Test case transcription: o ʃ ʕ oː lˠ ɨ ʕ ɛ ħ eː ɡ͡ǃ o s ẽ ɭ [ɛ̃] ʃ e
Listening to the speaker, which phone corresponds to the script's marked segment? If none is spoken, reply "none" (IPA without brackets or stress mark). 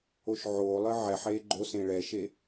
ɛ